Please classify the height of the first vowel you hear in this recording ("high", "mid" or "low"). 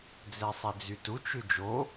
mid